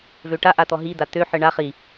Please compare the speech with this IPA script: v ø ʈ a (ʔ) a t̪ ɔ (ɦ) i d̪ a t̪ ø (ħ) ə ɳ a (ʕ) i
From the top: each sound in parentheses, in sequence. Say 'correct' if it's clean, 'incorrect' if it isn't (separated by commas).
correct, correct, correct, incorrect